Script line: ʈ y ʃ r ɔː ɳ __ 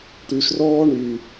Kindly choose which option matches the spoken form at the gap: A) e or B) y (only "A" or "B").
B